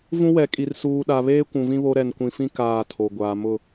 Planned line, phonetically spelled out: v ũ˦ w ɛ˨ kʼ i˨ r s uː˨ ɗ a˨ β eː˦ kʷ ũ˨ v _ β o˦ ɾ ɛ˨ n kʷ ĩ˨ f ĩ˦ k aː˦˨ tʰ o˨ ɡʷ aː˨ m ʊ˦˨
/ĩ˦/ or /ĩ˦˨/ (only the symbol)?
ĩ˦